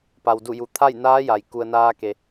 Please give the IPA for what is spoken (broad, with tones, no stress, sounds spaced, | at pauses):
p a˩ w d u˧˩ j u˩ t̪ʰ a˥˨ j n aː˧˥ j a˩ j k u˩ ə̯ n aː˧ k e˩